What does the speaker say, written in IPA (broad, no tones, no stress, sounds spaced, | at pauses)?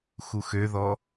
x u x ø ð ɔ